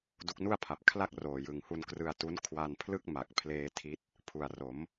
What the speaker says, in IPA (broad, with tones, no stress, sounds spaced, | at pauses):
d u˦˥ k̚ n u˥˩ a̯ pʰ a˨˩ p̚ kʰ l a˥˩ k̚ r oː˨˩ j ɯ˨˩ ŋ h u˧ n k r ɯ˧ a̯ t u˦˥ n kʰ w a˧ n pʰ l ɯ˥˩ k̚ m a˨˩ k̚ pʰ l eː˧ tʰ i˦˥ t̚ | pʰ u˨˩ a̯ r o˩˦ m